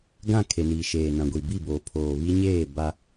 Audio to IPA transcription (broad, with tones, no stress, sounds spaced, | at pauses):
ɡ ã˦˨ kʰ e˨ n iː˨ ʃ eː˨ n ã˨ ɡʷ i˨ b i˦˨ b oː˨ pʰ oː˨ β i˦ ɲ eː˦˨ b a˦